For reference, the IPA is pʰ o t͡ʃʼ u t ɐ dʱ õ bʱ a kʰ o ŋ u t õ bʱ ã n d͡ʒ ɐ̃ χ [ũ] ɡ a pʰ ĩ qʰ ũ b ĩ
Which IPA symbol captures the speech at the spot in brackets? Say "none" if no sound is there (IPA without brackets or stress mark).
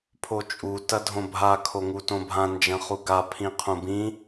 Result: u